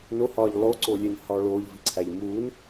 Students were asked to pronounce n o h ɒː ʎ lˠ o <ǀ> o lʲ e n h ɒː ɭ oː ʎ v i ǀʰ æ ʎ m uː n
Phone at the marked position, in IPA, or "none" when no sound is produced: ǀ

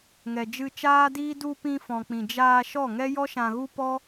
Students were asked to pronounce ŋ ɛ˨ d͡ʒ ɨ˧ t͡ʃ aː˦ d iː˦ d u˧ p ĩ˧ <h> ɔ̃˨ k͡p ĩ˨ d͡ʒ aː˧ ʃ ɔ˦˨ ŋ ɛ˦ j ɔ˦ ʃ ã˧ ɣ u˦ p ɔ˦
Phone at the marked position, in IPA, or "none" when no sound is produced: f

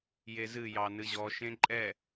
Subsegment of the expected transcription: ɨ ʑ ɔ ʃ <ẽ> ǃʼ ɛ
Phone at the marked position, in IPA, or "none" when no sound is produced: ẽ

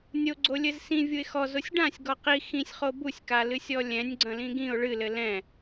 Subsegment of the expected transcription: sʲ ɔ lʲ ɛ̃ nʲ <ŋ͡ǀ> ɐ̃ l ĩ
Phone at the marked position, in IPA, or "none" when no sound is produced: ɡ͡ǀ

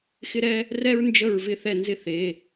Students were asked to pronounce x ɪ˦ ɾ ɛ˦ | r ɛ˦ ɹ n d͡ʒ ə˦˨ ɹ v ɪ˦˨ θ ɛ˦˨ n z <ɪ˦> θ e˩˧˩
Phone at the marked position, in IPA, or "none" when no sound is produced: ɪ˦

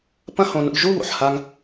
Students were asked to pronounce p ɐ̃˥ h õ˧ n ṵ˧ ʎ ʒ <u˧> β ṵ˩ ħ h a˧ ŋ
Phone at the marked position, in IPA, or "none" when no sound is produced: u˥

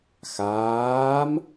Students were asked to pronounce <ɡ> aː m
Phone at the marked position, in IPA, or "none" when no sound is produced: x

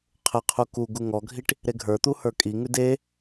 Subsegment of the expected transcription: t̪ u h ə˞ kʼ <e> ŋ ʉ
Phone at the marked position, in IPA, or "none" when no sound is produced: i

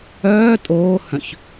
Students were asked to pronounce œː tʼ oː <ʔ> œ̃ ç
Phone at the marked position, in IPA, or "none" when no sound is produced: h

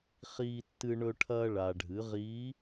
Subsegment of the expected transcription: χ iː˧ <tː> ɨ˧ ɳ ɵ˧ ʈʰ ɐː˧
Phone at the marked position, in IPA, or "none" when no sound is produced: tː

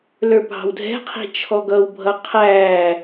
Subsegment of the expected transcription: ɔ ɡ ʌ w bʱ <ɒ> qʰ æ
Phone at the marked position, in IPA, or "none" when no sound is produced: ʌ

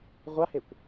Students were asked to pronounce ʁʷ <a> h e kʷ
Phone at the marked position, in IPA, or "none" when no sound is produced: a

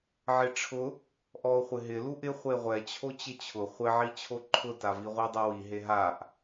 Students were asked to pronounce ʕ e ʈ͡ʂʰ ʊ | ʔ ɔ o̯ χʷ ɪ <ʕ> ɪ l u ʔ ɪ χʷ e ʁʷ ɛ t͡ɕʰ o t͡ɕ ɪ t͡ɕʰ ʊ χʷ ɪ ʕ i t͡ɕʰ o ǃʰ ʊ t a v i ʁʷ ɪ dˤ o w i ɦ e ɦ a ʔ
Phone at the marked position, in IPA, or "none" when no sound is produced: ɦ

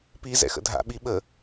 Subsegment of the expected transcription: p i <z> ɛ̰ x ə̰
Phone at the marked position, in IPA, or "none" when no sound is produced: z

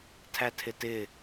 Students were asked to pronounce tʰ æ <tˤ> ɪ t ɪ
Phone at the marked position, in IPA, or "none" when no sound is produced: tʰ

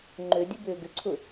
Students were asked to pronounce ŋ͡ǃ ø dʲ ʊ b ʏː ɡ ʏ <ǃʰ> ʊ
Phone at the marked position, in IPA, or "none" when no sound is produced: ǀʰ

